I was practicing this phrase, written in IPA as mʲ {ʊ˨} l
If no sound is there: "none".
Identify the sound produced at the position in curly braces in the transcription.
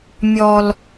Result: ɔ˨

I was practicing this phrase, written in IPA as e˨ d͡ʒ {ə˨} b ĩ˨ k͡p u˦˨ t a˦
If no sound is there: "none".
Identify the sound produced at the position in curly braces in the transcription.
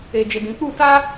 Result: ə˨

